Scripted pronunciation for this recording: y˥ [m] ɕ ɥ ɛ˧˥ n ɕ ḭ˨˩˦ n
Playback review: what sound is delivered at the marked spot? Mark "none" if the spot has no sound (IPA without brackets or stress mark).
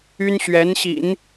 n